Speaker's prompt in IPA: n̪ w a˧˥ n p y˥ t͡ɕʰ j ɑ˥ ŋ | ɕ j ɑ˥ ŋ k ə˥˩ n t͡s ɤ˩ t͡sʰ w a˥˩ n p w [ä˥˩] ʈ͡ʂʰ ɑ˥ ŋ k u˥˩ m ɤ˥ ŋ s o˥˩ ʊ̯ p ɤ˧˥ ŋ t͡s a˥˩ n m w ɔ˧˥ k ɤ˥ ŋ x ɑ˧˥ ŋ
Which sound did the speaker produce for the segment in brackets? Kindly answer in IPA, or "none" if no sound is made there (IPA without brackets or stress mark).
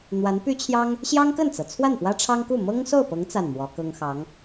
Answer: ä˥